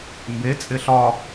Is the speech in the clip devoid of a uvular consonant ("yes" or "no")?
yes